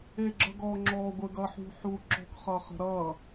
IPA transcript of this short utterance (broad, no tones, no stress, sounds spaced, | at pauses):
e ɡ͡ǁ ʌ ɡ ɔ ŋ͡ǁ ɔ ɡʷ ə ɡ ʌ ħ ṳ ħ u ǁ ɔ̤ k χ ʌ χ ə̤ ɾ ʌ